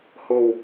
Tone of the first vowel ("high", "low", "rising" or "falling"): low